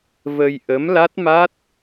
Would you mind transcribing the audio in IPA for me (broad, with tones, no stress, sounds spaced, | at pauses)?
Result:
v ə˧ j ʔ ə˧˥ m l a˦˥ t̚ m a˦˥ t̚